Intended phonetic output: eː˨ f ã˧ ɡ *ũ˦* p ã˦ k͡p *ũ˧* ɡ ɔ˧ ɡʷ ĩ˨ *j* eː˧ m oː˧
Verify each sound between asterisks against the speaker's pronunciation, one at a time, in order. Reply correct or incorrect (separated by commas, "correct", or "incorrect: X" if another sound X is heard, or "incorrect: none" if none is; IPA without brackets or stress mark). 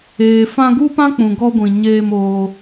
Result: incorrect: u˦, incorrect: ũ˨, incorrect: ɲ